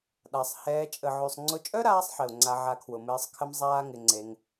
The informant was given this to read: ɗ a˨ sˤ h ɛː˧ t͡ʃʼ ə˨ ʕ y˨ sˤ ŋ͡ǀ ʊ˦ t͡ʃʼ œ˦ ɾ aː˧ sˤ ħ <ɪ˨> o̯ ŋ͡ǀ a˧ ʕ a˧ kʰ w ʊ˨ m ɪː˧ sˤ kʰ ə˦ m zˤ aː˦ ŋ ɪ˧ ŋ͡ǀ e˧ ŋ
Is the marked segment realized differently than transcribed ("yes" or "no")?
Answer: no